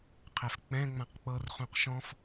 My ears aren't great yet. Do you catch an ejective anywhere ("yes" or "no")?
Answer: no